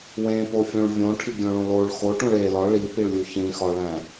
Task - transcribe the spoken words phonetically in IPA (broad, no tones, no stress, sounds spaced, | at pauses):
w ẽ p o fʲ õ ɭ vʲ õ ʈʰ i ɡʲ õ ɭ õ l o ɭ x o ʈ ũ ɭ e l ɒ ɭ i p i ɭ lʲ u ç ĩ x ɒ ɭ æ̃